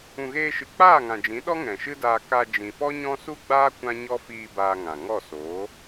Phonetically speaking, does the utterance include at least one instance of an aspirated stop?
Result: no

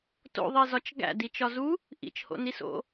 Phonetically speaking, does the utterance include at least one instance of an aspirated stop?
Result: no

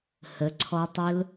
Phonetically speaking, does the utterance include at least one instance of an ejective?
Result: no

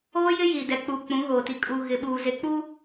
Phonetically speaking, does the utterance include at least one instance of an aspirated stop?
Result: no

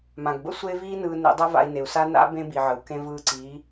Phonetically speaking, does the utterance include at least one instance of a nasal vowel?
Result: yes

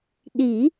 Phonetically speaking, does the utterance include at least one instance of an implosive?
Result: yes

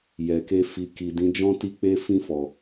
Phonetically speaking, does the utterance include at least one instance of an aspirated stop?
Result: no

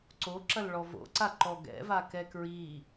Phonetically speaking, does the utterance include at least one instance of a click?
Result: yes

